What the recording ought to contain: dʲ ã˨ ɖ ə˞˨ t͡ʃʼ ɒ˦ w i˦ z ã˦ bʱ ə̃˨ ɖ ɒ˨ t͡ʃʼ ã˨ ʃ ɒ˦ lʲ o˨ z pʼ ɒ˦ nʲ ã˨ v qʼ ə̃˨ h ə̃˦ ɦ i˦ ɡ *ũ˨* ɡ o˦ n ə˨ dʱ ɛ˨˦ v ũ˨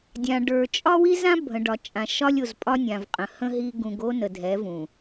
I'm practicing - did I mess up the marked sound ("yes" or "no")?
no